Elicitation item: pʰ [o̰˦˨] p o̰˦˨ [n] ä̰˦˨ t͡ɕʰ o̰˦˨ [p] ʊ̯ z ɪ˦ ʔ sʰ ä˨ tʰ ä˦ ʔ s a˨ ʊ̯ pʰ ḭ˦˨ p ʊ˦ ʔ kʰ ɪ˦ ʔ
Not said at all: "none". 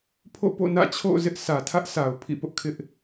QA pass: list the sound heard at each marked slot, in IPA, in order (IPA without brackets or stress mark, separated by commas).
o̰˦˨, n, none